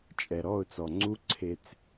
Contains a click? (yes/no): yes